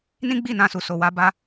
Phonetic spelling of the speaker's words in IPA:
n ĩ˦ ɡ͡b i˦˨ n ã˧ s u˨ s o˨ w a˨˦ b a˦

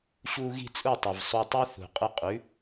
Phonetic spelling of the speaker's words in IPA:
ɕ u˧ ɣ i̤˥˩ t͡sʼ u˥˩ tˤ ɘ˩ v sˤ u˧ tˤ ʉ˥ θ ṳ˩ qʼ ɘ˧ qʼ ʉ˩˥

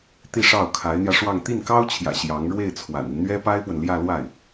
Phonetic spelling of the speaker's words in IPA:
t̪ i˥˧ ʂ ɑ˥˩ ʊ̯ kʰ a˧˥ ɪ̯ n̪ j ä˧ ʂ w ɑ˥˧ ŋ t̪ i˥˩ n k ɑ˥ ʊ̯ t͡ɕʰ j ä̰˨˩ ɕ j ɑ˧˥ ŋ ɻ w e˥˩ ɪ̯ t͡sʰ w a̰˨˩ n i˦ n n̪ ɥ ɛ˥ p a˥ ɪ̯ p w ə˨ n l j ä˥˧ l w a˥˩ ɪ̯

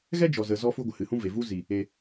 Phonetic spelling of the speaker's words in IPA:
ɣ ɛ˦ d͡ʒ ɔ˨ z ə˨ z ɔ˧ f u˧ ɡʷ ə˨ h ɨ˨ h ũ˦ v e˨ v u˦ z i˨ | e˨

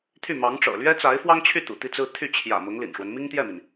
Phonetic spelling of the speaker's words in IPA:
t̪ʰ y˥˩ m ɑ˧˥ ŋ ʈ͡ʂ ɤ̰˨˩ l ɥ ɛ˥ t͡s a˧˥ ɪ̯ f w ɑ˥ ŋ t͡ɕʰ y˥˩ t̪ ṵ˨˩ t̪ i˥˧ t͡s ɹ̩˥˧ t̪ʰ y˥˩ t͡ɕʰ j ä̰˨˩ m ʊ˧˥ ŋ l ḭ˨˩ n ʂ w ə˦ n m i˥ ŋ t̪ j ɛ˥˩ m i˩ n

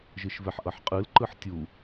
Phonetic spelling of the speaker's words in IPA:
ʒ ɯ ʃ v ɛ ħ ʔ ʌ ħ qʼ ɯ l ǃ ɯ ħ tʲ u

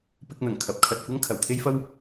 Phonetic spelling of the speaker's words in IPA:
p ɪ˧ k̚ n̪ ɐ˨˩ ŋ kʰ ɐ˨˥ p̚ kʰ ɐ˨ t̚ kʷ ɐ˥ ŋ kʰ ɐ˨˩ w t̪ʰ e˥ j f ɐ˥ w

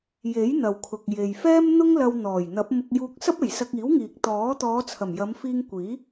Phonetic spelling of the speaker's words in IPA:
j e˨˥ j n̪ ɐ˨ w kʰ ʊ˨ k̚ j e˨ j f ɛː˥ m n̪ ʊ˥ ŋ l ɐ˧ w n̪ ɔː˨˩ j n̪ ɐ˨˥ p̚ m ʊ˧ k̚ j uː˧ k̚ s ɐ˥ p̚ e˨˩ j s ɐ˧ k̚ iː˨˥ w ŋ iː˨ k̚ t̪ ɔː˨˥ t̪ ɔː˨˧ t͡sʰ ɐ˨˩ m j ɐ˨˧ m f iː˧ ŋ kʷ iː˨˥

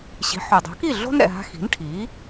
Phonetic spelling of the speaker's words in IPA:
ɕ i̤˩˥ ħ o˩ dˤ o̤˩˥ k i˥˩ ɮ o̤˥ n ɾ ɛ̰˩ ɦ a̤˧ x i̤˩˥ n ʈʰ i˩˥

